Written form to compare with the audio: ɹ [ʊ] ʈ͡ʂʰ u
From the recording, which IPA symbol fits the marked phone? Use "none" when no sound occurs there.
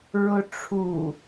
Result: ʊ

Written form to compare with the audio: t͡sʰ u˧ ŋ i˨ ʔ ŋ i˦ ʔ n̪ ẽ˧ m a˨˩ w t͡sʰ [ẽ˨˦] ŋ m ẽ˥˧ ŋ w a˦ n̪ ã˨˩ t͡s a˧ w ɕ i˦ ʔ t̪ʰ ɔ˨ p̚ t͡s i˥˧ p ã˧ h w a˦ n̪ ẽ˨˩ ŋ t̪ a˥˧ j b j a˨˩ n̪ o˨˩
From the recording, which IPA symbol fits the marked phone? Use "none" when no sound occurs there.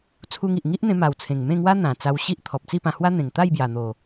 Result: ẽ˨˩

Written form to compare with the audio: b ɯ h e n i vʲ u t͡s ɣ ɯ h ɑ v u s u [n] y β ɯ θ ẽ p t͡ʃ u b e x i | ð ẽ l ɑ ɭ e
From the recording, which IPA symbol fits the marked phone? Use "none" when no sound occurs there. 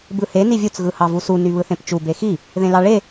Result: n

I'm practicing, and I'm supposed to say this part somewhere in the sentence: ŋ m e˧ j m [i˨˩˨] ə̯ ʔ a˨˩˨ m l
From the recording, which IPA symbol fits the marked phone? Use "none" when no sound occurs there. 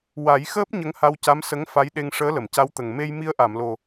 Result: i˧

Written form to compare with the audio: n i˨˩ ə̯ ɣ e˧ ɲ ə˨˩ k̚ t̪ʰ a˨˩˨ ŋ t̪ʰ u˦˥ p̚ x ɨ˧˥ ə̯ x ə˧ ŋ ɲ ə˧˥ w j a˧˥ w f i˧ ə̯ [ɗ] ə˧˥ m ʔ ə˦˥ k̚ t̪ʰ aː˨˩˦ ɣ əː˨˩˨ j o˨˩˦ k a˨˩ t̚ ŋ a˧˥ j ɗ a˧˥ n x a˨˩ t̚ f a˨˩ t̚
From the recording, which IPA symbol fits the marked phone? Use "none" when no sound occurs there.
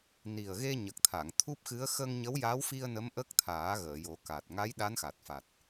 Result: n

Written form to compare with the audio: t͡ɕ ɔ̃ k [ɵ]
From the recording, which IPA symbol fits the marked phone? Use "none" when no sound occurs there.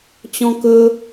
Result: ɵ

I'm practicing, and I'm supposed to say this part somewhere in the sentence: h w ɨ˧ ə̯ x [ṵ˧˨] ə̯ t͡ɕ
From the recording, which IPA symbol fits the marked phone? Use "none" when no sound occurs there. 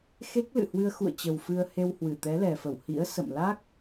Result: ṵ˧˨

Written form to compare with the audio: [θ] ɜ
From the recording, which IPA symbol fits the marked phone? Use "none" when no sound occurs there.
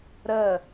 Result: ɾ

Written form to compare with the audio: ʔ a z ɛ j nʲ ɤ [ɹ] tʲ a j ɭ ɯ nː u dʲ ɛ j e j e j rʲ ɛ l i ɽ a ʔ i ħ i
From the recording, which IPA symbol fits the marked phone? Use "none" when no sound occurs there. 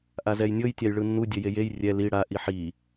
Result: j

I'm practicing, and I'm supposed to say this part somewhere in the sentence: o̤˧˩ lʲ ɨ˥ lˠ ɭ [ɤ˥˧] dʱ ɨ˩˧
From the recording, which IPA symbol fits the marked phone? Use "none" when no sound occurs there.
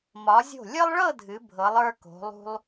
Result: ɤ˥˧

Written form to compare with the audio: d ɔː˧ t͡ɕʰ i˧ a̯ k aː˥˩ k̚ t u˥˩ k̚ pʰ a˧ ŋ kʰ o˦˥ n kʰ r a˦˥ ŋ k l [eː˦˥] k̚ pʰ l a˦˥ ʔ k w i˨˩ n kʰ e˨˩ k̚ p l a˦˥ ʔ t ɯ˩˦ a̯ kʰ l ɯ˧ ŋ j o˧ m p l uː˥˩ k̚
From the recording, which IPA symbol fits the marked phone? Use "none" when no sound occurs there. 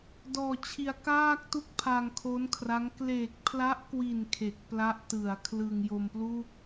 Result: eː˨˩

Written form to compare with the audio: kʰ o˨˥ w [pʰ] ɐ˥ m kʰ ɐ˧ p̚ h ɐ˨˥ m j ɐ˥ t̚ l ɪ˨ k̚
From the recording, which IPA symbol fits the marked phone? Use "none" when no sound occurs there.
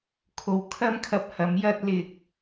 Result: kʰ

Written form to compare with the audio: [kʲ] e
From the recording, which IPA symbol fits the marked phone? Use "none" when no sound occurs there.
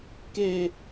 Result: k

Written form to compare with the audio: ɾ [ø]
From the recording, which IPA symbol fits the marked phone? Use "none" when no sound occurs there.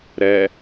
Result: ɛ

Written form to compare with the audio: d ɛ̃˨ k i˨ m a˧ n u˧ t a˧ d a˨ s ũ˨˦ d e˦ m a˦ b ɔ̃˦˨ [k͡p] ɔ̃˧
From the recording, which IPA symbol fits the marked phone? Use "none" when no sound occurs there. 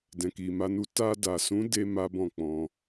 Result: k͡p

